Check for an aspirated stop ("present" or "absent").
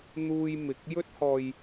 absent